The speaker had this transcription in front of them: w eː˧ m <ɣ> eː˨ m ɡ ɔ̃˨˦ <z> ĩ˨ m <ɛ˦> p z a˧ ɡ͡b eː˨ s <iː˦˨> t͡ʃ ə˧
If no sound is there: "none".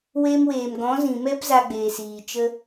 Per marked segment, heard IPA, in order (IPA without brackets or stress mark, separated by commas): w, z, ɛ˦, iː˨